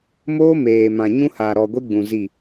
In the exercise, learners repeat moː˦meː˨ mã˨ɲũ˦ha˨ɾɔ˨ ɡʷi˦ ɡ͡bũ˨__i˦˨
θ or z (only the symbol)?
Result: z